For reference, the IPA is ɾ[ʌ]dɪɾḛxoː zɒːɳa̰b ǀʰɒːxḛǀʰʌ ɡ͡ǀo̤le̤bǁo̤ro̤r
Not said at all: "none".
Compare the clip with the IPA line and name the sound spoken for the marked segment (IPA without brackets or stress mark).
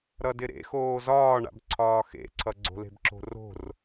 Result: ʌ